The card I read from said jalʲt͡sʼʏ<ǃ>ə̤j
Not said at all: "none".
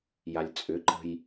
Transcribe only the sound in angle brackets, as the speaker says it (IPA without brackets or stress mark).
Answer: ǃ